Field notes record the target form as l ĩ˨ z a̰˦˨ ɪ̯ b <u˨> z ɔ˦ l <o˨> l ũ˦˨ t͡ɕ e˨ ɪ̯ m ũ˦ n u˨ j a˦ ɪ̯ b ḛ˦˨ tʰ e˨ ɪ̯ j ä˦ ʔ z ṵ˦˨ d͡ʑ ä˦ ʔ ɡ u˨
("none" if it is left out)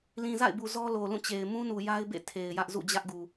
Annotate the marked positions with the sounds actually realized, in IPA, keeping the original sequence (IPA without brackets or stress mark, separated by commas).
u˨, o˨